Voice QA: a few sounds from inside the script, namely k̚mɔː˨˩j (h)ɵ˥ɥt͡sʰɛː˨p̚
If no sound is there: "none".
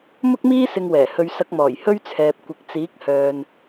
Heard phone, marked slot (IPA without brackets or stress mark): h